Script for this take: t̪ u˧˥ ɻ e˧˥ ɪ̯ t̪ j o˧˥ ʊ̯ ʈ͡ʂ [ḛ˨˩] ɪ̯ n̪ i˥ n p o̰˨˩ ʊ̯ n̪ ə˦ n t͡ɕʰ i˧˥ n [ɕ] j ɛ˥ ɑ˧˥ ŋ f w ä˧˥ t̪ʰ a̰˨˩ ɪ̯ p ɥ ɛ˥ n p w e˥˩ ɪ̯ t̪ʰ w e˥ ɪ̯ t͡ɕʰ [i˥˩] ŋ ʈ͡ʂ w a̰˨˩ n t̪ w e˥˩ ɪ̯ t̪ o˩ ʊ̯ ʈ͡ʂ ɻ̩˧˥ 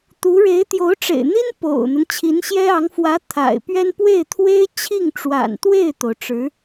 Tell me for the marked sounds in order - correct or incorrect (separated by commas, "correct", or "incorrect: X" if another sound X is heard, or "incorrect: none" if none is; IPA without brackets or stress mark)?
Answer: correct, correct, correct